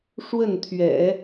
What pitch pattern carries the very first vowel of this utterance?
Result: falling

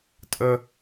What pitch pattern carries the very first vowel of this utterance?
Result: high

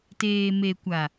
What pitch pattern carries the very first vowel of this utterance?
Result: low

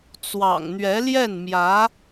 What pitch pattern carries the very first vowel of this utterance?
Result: low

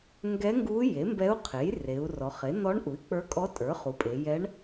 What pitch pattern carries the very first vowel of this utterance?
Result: rising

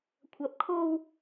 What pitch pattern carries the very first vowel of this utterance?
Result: rising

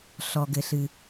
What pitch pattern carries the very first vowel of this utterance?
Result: low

